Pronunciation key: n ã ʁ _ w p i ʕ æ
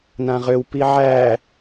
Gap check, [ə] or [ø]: ø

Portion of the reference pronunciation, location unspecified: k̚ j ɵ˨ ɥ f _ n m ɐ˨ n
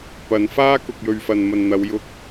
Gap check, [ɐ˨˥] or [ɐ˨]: ɐ˨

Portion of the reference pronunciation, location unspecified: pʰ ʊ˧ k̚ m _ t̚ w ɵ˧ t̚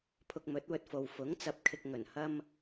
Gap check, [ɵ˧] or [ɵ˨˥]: ɵ˨˥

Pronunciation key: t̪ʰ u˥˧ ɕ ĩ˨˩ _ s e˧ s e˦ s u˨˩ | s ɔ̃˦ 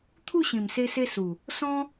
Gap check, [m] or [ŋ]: m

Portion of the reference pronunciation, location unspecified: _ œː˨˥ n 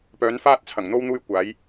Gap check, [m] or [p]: p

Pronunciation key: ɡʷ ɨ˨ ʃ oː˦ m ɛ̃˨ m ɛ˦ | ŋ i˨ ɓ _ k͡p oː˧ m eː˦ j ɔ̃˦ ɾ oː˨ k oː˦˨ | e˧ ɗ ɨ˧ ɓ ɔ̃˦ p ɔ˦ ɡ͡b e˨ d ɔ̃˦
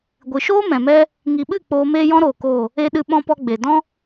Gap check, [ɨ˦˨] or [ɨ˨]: ɨ˦˨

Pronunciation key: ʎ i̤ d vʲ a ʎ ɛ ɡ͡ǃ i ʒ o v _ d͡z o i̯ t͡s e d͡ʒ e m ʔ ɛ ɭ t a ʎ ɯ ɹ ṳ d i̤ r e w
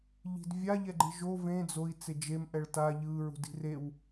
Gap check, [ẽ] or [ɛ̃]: ẽ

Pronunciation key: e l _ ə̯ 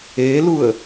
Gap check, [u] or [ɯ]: u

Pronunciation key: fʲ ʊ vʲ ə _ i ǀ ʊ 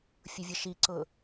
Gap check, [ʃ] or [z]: ʃ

